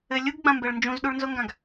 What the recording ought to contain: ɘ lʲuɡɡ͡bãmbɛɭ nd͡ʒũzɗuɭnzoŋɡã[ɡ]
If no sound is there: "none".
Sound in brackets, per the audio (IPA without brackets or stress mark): ɡ